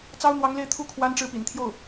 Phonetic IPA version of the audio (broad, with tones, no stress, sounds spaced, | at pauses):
t͡s ɑ˥ ʊ̯ n̪ w ɑ˧˥ ŋ l e˥˧ ɪ̯ t̪ʰ u˥˩ kʰ w a˥ n ʈ͡ʂ ɻ̩˥˩ p ḭ˨˩ n t̪ʰ j o˥˩ ʊ̯